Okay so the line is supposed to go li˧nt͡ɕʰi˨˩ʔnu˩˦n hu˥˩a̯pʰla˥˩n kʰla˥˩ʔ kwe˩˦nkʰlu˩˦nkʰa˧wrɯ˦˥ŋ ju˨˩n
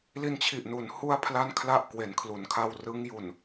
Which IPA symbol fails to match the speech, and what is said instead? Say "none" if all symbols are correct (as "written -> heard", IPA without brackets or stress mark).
none